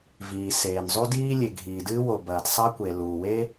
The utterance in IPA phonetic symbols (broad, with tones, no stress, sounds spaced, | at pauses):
v iː˩ s eː˩ n zˤ u˥ d iː˥ lʲ e˩ ɡʱ iː˩ d ɨː˥ w o˩ b ɐː˩ t sˤ ɐ˥ kʷ e˩ l uː˩ w e˥